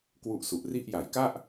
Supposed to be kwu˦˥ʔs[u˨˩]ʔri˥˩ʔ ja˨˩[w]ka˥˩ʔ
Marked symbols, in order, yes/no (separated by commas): yes, no